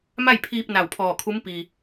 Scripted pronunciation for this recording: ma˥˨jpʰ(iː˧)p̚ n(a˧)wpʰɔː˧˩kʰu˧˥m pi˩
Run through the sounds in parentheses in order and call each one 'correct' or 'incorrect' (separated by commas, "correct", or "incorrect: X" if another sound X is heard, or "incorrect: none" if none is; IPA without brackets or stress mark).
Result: correct, incorrect: a˧˩